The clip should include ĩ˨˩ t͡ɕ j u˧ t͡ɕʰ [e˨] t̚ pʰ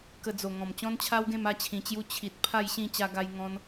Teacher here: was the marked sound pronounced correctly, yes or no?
no